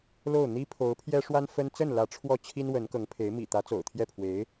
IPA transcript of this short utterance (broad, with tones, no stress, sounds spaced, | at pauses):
l o˥˩ ʊ̯ n̪ i˥ pʰ o˧˥ ʊ̯ pʰ j ɛ˥ ʂ w a˥ n f ə˥ n t͡s ə˥˩ n l ä˧˥ ʈ͡ʂʰ w ɔ˥˩ t͡ɕʰ i˥ n w ə˧˥ n k ɤ˧˥ ŋ pʰ e˧˥ ɪ̯ m ḭ˨˩ t̪ ä˧˥ t͡s o̰˨˩ ʊ̯ t̪ʰ j ɛ˥˩ pʰ w e˧˥ ɪ̯